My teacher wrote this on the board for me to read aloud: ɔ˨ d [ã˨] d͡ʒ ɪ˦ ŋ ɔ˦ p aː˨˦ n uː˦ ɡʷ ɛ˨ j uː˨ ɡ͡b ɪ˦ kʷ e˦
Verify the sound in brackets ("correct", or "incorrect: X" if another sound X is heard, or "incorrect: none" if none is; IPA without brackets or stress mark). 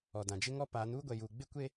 correct